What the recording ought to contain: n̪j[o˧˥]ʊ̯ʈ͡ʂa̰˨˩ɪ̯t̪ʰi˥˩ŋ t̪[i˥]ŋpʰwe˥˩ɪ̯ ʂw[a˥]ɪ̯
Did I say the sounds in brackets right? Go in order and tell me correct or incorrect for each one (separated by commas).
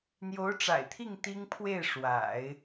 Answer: correct, correct, incorrect